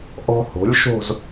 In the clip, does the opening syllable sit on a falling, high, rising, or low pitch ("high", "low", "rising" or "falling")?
high